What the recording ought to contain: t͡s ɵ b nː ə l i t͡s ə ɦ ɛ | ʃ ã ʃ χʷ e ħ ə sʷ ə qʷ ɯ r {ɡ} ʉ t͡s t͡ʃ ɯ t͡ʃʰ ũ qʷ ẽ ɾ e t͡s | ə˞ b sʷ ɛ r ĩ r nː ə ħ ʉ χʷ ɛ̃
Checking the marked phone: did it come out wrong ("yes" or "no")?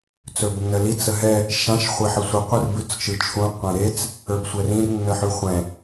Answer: yes